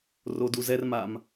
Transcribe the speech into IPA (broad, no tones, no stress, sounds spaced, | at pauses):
r o d u z ɛ r m a m